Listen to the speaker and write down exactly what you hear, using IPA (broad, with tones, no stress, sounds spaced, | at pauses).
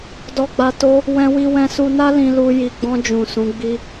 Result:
d ɔ˨ ɡ͡b a˨ t o˧ | w ɛ̃˧ w i˧ w ɛ̃˧ s u˧ n a˦ l ĩ˧ l u˧ j i˨ ɡ͡b ɔ̃˧ d͡ʒ ũ˨ s ũ˨˦ ɡ͡b i˦